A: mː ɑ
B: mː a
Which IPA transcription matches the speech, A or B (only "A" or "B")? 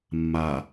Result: B